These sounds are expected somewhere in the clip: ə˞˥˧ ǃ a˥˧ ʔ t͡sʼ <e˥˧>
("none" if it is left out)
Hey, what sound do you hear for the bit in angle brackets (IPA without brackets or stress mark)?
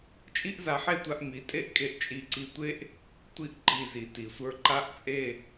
e˥˧